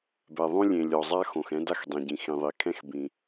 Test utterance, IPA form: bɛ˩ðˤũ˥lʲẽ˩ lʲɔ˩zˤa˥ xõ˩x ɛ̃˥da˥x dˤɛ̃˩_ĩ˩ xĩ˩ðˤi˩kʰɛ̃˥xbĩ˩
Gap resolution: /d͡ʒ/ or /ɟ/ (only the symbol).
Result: ɟ